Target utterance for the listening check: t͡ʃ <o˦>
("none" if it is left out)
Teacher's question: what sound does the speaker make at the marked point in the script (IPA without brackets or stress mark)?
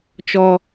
ɔ˦